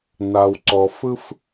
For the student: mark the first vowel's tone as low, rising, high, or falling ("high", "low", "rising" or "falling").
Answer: low